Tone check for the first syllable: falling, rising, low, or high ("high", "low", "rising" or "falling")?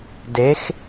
rising